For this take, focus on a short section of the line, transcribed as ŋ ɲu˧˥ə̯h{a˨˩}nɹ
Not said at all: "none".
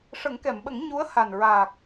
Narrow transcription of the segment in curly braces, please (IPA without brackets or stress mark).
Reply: a˨˩